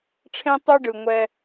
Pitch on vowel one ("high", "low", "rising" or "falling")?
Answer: high